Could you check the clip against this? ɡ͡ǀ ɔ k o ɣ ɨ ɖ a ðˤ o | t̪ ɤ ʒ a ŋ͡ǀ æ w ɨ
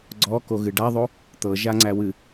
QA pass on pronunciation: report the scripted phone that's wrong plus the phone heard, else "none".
none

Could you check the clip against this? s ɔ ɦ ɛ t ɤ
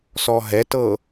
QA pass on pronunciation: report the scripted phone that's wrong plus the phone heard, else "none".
none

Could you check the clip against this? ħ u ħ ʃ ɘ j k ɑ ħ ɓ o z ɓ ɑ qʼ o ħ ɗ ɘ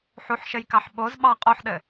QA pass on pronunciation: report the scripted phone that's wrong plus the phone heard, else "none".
none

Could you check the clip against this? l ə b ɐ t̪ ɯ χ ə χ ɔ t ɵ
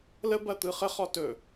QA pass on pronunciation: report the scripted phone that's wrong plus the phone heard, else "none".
none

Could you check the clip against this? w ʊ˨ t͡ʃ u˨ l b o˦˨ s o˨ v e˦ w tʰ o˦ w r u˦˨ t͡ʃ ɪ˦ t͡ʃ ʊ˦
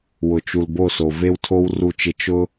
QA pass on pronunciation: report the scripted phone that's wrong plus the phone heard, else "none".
none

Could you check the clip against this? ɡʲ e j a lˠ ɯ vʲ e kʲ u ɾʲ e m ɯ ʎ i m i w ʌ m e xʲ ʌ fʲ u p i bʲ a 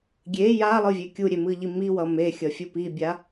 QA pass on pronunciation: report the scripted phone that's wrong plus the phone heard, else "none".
none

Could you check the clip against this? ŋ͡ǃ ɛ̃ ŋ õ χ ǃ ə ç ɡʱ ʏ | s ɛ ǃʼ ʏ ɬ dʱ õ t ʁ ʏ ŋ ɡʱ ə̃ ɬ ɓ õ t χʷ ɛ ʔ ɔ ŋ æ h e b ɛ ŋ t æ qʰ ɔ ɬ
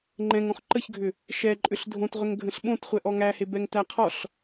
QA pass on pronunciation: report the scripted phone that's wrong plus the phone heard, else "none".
s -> ʃ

